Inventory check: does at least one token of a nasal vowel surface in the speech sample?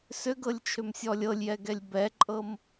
no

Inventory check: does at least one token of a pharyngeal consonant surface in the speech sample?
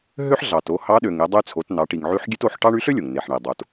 yes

